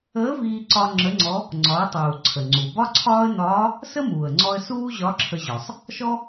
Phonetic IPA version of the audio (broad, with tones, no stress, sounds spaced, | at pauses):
əː˧˥ v iː˧ ǀ ɒ˧ ŋ͡ǁ ə˧˥ ŋ͡ǀ ɔ˧˥ | ŋ͡ǀ ɒ˩˧ ə̯ tˤ uː˩ ǀʰ ə˩ ŋ͡ǀ u˩ b ɒ˥ ǀʰ ɒː˥ ə̯ n ɒː˧˥ | s ə˥ m uː˩ ə̯ ŋ͡ǀ ɔ˧ ə̯ s uː˥ ʑ ɒ˧˥ ǁʰ ə˧ ʑ ɒ˩ sˤ | ʃ ɔ˥